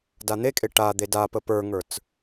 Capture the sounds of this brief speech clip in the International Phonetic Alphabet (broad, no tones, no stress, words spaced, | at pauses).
dan̪ekʼe ʈa d̪edapə pə˞ŋə˞t͡s